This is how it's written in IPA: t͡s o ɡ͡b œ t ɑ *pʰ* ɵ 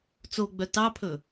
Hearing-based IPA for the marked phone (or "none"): pʰ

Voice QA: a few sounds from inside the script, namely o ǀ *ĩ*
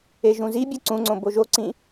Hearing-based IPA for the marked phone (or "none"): ĩ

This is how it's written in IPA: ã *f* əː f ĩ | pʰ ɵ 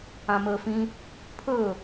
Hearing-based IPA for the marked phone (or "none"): m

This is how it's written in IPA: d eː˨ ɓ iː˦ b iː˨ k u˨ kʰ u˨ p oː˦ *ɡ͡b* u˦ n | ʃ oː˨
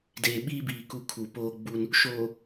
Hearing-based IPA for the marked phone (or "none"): ɡ͡b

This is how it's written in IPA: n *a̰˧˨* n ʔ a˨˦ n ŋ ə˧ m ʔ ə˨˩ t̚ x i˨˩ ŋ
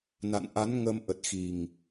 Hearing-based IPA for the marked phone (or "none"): a̰˧˨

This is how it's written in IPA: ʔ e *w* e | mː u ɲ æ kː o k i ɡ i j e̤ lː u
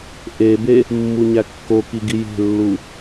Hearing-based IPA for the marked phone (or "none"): b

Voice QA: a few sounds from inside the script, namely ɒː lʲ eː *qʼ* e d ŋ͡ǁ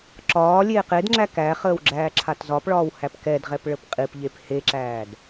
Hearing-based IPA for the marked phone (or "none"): q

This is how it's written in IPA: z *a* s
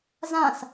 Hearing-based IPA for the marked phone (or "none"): ã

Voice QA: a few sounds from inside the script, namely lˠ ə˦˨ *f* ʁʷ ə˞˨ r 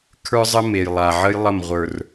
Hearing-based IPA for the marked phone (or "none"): m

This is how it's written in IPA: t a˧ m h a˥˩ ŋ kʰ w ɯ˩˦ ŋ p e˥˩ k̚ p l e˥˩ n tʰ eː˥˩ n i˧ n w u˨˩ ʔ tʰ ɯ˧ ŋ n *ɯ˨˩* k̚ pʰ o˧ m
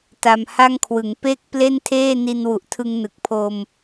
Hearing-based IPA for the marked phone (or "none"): ɯ˨˩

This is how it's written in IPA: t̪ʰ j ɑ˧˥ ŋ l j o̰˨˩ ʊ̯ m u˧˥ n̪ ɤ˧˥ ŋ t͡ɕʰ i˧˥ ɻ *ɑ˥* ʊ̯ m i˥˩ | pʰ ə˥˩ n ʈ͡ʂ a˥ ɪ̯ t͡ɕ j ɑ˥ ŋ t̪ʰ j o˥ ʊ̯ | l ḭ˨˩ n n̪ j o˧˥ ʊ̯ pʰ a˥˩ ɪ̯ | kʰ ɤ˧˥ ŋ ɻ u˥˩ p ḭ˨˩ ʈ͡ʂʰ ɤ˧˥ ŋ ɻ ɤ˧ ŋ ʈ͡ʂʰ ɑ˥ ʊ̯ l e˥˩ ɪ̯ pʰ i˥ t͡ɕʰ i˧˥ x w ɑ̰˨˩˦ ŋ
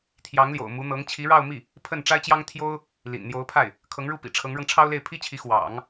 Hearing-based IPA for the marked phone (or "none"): ɑ˥˧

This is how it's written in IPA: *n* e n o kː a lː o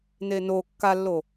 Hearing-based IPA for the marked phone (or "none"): n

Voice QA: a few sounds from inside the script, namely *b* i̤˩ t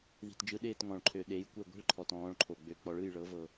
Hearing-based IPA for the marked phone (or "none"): ð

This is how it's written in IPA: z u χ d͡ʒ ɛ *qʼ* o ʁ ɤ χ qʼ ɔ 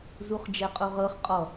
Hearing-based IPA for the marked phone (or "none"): qʼ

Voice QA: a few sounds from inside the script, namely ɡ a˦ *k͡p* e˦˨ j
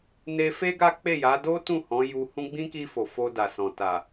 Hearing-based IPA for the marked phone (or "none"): k͡p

